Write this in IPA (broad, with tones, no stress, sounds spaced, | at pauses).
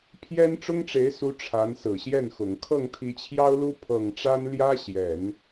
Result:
pʰ j ɛ˥ n ʈ͡ʂ ʊ˥ ŋ ʈ͡ʂ e˧˥ ɪ̯ s u˧˥ ʈ͡ʂʰ a˧˥ n s ɹ̩˨˩ ɕ j ɛ˥˩ n x ʊ˨˩ ŋ kʰ ɤ˥˩ ŋ t̪ʰ i˧˥ t͡ɕʰ j ɑ˥ ʊ̯ l u˥ pʰ ɤ˨˩ ŋ ʈ͡ʂ a˥ n l j ä˥ ɕ j ɛ˨˩˦ n